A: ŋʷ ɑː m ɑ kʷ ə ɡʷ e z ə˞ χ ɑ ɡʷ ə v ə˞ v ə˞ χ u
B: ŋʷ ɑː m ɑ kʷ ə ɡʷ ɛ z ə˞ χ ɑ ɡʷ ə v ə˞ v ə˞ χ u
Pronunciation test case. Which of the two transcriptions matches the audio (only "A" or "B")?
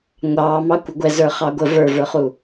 B